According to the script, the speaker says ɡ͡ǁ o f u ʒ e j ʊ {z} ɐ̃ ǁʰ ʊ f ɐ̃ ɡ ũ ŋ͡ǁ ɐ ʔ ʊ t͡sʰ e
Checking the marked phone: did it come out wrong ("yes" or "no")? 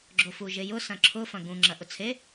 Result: yes